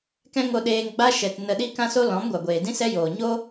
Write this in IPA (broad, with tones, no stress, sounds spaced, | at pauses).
k ɛ̃˦ ŋ o˧ ɗ eː˧ ŋ ɡ͡b a˦ ʃ ɛ˨ t n ə˨ ɗ i˧ k ã˦ s o˦ l ɔ̃˨˦ m ɡʷ a˨ ɡʷ eː˨ d ĩ˦ s ɛ˦ j oː˨ ɲ o˦